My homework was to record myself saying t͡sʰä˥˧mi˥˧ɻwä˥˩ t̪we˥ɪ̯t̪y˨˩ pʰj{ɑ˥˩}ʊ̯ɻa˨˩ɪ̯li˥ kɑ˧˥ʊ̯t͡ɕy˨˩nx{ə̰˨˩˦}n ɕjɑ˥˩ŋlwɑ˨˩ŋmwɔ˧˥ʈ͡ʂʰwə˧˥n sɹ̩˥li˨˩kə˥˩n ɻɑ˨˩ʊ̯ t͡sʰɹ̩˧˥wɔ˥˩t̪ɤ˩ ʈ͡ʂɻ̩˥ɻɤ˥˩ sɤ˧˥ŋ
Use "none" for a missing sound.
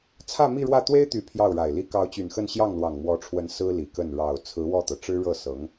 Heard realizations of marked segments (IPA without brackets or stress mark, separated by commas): ɑ˥˩, ə˥˧